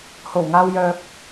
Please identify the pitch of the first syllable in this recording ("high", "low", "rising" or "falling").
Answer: low